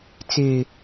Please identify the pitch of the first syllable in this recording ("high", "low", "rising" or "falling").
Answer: low